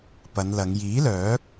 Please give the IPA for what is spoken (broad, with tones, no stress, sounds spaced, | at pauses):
p ɐ˨˧ n l ɐ˨˧ ŋ j iː˨˥ l œː˨˥ k̚